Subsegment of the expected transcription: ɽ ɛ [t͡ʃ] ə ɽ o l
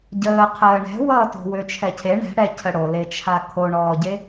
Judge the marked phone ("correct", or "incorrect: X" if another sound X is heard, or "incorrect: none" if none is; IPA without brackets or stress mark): incorrect: cʰ